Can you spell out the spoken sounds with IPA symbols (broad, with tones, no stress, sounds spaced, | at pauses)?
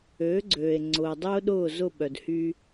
øː˩˥ ɡ͡ǀ øː˩ e̯ ŋ͡ǀ ʊː˩ dˤ ʊː˥ ɗ ʊː˥˩ z ʊ˥˩ ɓ œ˩ d h y˧